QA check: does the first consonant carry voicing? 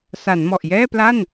no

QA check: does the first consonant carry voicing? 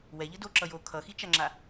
yes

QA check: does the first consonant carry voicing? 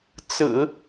no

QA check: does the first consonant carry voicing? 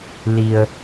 yes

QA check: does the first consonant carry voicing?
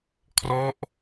no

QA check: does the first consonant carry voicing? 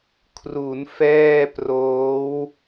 no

